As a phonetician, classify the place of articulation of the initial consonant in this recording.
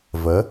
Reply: labial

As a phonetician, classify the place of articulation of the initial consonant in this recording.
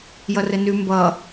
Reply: palatal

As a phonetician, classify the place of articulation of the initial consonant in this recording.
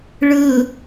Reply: retroflex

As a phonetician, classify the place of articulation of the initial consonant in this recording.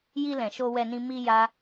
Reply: palatal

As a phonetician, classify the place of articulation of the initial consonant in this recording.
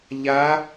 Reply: palatal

